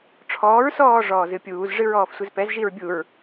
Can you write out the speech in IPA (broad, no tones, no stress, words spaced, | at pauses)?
ʈ͡ʂʰɔːɹsɔː ʐɔːzɨpʲuːz ʐɨɹɔːfsʷɨzpɛz ʒiɹbʲuɹ